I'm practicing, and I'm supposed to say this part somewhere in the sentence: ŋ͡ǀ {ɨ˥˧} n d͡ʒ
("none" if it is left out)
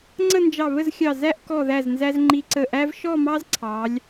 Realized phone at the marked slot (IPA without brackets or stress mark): ə˥˧